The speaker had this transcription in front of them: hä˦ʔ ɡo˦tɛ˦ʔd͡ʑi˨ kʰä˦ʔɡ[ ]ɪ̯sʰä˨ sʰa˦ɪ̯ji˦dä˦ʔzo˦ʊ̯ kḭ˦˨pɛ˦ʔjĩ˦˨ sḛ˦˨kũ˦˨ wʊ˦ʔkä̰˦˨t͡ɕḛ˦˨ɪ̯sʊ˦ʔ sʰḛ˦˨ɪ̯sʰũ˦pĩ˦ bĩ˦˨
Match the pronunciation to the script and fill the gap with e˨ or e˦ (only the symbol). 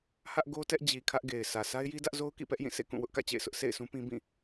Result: e˨